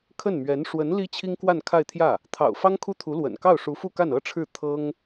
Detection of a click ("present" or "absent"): absent